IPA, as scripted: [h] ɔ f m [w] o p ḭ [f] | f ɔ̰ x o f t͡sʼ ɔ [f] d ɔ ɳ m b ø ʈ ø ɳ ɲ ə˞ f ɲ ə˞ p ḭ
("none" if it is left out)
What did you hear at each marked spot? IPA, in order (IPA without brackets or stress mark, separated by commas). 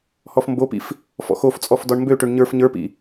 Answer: h, b, f, f